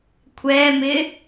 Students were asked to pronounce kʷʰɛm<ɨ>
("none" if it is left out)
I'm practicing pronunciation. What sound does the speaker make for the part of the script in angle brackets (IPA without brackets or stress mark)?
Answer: ɪ